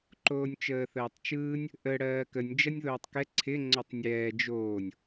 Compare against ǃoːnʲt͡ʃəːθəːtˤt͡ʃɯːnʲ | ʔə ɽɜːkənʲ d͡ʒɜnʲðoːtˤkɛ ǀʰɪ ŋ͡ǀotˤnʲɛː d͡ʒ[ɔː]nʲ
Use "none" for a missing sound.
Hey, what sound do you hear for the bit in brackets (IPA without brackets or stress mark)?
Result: oː